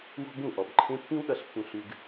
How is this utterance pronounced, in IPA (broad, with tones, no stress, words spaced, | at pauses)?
wɔ̤˦bũ˦˨ʔɔ˨bǃʰẽ˦ pːĩ˦w ɗʌ˦˨ɬpːũ˧ ɬʉ˦ɡ